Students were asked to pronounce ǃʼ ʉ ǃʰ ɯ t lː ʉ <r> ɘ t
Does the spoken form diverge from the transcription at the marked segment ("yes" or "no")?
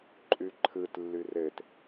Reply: no